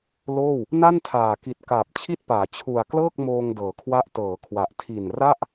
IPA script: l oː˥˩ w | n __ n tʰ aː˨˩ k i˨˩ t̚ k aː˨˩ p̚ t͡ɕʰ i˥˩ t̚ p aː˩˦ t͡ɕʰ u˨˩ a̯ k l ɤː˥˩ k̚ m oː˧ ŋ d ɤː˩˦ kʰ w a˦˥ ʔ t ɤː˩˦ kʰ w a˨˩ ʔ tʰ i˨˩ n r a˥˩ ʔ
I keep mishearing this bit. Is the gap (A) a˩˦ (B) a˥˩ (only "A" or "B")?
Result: B